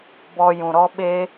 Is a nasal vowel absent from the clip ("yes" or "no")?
no